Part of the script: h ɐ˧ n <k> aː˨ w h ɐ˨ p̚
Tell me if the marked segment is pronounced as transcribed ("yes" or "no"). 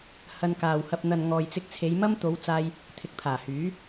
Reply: yes